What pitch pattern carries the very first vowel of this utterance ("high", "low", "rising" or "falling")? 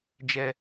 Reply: low